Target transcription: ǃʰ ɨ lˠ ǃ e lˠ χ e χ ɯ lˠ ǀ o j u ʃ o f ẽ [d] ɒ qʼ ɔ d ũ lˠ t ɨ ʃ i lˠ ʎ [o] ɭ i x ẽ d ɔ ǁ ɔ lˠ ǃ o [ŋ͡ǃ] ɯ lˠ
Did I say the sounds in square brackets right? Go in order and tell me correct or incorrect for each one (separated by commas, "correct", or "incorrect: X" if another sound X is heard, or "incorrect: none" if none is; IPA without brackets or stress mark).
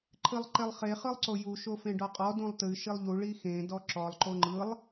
incorrect: ɖ, incorrect: u, correct